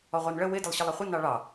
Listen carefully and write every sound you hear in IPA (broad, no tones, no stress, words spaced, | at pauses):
ɔʁʷɑnɭə wɪ dɪlˠɕəlˠʌχʷɪ nɑɭɑ